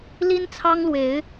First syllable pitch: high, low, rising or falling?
high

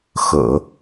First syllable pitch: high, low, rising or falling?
low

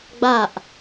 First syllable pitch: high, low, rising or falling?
falling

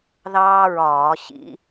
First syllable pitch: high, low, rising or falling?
high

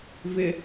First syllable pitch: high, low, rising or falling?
low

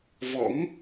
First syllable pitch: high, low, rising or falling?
rising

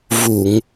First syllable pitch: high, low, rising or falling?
low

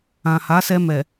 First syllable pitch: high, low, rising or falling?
low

